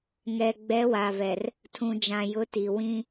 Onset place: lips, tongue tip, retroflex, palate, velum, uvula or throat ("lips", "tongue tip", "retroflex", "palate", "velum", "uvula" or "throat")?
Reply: velum